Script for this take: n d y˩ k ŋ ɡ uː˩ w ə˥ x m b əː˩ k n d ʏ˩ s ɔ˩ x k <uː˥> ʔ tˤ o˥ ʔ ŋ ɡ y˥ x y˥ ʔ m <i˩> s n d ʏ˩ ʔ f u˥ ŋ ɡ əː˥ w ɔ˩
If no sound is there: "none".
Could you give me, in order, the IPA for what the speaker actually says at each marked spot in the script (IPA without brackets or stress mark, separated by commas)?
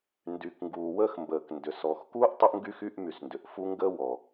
uː˥, y˩